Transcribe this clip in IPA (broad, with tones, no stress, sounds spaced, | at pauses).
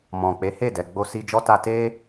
m ɔ̃˨ k͡p e˨˦ h e˦˨ d ɛ˨ ɡ͡b o˧ s i˧ d͡ʒ ɔ˦ t a˧ t e˦